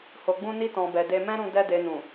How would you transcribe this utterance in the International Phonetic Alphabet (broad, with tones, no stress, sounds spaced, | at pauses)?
h o˨ ɡ͡b ũ˧ n i˧ t ɔ̃˨ b ɛ˨ d e˧ m ɛ̃˦ ɾ ũ˧ d ɛ˧ d e˨ n ũ˨